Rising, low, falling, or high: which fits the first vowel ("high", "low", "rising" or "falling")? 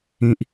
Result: low